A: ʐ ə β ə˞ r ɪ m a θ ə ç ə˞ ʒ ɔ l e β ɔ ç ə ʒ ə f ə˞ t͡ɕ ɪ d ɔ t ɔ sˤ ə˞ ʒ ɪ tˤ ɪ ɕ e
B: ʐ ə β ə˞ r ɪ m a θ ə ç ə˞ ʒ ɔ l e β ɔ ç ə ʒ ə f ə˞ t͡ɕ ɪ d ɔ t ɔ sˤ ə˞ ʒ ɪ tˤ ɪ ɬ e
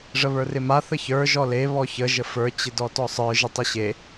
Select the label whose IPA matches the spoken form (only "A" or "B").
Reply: A